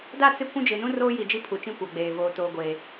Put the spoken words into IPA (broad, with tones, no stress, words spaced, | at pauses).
da˦˨t͡sɪ˦˨ kʷũ˦d͡ʒɪ˨nũ˦ roː˦ji˨d͡ʒi˦ pʰu˨t͡ʃĩ˦kʷa˨ɡ͡beː˨ voː˨toː˨ɡʷeː˨